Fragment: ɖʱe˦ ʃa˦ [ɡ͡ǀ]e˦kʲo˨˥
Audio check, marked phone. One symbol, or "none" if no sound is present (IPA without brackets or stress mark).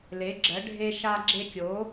ɡ͡ǁ